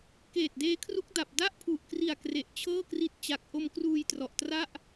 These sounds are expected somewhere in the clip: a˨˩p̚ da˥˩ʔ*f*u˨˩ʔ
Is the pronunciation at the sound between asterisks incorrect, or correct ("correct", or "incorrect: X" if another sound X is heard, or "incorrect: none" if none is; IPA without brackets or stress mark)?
incorrect: pʰ